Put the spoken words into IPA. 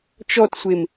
t͡ʃ ɔ t sʷ e m

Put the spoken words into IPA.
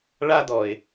ɭ a˦ d ɔ˨ ɪ̯

